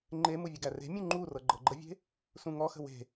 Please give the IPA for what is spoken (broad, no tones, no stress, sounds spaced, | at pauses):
ŋ͡ǃ e m u vʲ ə ɡ æ r e̤ mʲ ũ ŋ͡ǃ u r ɤ ɡ͡ǃ ɤ ɡ͡ǃ ə vʲ e̤ | s ũ ŋ ɔ x ə̤ w e̤